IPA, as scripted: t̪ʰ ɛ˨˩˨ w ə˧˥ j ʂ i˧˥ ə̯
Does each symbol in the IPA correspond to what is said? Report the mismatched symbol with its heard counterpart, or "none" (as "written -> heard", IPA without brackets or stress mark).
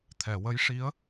none